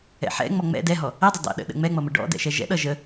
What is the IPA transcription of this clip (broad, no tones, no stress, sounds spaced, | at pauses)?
ɛ̰ ħ ɛ̰ ŋ͡m ɔ ŋ͡m ɛ̰ d ɛ ɦ ɔ | ɛ dˤ ə dˤ ɛ̰ ɗ ə̰ ɗ ə̰ ŋ͡m ɛ ŋ͡m ʌ m ə ɖ ɔ̰ d ɛ̰ ʃ ɛ ʒ ɛ̰ ɗ ʌ ʒ ə